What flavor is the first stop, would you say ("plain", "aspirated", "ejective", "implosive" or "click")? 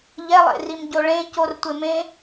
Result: plain